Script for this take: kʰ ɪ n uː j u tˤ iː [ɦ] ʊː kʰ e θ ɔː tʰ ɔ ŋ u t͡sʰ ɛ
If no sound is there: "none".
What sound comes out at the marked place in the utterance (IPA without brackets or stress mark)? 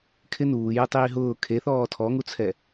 ɦ